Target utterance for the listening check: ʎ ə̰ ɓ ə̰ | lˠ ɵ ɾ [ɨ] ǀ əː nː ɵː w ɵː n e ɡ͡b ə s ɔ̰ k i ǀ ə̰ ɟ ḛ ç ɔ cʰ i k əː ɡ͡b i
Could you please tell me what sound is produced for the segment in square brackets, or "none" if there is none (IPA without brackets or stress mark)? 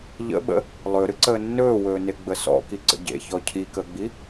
ɨ